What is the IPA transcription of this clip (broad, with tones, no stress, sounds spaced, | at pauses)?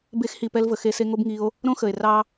b e˧ x h i˨ p ɛ˧ l v ə˨ x e˧ s e˧ ŋ o˦ b ŋ i˧ o̯ | ɾ õ˦ x ə˨ e̯ r ɑ˦